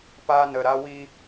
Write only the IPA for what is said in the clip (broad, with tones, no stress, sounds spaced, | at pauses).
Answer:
p a˦ n ə˧ ɾ a˦ w i˦